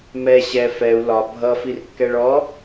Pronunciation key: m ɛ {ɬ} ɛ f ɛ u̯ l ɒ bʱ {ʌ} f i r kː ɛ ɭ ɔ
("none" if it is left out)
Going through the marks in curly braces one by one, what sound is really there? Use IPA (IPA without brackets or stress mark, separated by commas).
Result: ɕ, ʌ